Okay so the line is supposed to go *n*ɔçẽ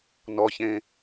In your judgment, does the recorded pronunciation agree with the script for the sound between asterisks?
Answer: yes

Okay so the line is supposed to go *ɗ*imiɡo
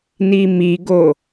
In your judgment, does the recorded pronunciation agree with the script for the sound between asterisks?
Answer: no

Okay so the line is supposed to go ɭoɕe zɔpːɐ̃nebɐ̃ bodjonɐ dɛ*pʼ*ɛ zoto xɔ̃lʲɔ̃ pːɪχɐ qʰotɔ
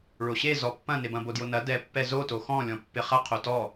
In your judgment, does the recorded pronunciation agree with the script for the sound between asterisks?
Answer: no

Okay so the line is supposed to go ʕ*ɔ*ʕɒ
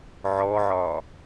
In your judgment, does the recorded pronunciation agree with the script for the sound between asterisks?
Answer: yes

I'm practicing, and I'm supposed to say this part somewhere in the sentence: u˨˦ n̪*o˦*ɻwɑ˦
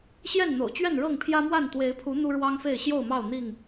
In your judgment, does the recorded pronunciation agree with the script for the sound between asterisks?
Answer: no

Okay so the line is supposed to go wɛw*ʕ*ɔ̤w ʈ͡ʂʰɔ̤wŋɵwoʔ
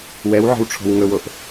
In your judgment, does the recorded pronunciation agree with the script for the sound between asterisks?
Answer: yes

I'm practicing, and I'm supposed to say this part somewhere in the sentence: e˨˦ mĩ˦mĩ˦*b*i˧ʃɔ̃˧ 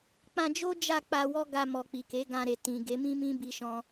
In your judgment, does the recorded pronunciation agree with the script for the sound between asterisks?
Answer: yes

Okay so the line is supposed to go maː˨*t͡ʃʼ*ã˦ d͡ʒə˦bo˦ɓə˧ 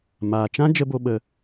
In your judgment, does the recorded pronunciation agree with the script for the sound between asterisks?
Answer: no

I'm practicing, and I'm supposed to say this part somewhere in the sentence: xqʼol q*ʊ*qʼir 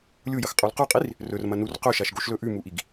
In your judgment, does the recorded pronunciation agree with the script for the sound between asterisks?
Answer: no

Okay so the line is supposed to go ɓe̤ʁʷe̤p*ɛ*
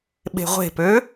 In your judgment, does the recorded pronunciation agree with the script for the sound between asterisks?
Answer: no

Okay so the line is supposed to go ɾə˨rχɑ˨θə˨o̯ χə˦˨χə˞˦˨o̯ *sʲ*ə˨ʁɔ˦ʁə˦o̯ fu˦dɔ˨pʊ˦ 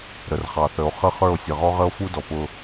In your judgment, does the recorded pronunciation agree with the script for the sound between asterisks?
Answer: yes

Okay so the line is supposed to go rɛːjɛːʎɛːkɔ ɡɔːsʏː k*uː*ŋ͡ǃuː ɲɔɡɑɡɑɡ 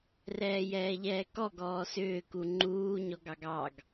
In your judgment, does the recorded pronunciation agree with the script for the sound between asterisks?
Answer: no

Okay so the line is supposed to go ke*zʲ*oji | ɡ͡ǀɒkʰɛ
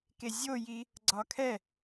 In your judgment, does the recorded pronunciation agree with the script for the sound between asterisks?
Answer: yes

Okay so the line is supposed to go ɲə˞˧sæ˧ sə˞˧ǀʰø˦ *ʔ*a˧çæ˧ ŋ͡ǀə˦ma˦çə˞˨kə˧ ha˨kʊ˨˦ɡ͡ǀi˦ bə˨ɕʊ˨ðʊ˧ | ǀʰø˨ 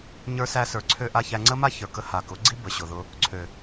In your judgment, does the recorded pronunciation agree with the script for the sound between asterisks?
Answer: yes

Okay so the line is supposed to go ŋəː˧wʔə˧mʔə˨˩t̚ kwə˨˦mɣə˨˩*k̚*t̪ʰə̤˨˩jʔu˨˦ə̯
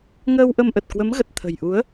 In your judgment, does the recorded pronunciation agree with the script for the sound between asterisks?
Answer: no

